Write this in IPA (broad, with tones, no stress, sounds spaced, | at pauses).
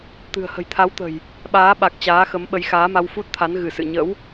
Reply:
t̪ ɨ̤˨˩ ə̯ h ə̤˨˩ j t̪ʰ a˨˦ w t̪ ə̤˨˩ j | ɓ aː˨˦ ɓ a˨˩ k̚ t͡ɕ aː˨˦ x ə˨˦ m ɓ ə˨˦ j x aː˨˦ m a˧ w f u˦˥ t̚ t̪ʰ a˨˦ n ɣ ɨ˧˩ s ɨ̰˧˨ ɲ ə̰˧˥ w